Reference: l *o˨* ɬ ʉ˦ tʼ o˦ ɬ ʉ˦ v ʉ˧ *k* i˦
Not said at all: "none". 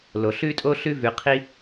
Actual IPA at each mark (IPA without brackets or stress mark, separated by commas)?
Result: o˨, qʰ